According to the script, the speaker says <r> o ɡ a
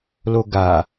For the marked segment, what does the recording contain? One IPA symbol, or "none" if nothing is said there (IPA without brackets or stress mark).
l